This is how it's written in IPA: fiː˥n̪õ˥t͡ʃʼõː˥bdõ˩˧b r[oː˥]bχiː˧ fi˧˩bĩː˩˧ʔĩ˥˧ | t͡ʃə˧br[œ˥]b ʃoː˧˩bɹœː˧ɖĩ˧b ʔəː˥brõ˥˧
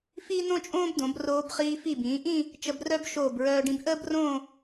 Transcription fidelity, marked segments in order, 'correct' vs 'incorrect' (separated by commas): incorrect, correct